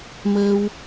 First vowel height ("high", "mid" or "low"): mid